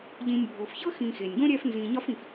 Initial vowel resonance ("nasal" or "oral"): nasal